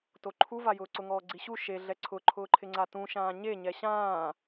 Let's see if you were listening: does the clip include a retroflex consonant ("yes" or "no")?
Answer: no